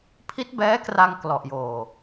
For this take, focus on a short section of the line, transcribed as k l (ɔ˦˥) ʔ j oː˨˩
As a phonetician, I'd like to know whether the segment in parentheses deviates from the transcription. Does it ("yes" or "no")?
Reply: yes